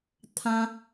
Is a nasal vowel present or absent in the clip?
present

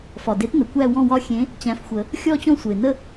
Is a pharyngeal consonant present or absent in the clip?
absent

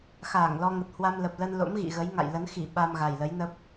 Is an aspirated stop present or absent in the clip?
absent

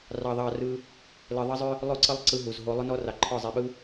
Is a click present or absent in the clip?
present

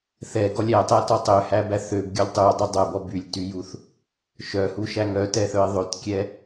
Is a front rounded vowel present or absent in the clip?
present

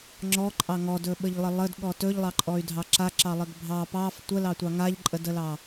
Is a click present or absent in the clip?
present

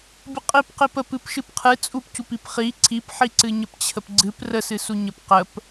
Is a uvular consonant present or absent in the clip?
present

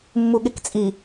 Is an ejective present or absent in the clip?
present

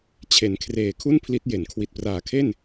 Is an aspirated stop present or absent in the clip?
present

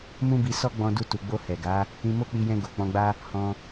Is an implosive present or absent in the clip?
absent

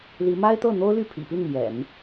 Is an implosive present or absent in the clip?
absent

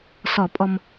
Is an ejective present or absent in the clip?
present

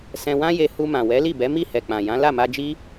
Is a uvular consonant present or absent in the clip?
absent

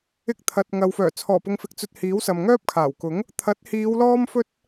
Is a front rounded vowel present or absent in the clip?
present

